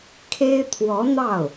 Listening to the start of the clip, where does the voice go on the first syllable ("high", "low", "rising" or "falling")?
high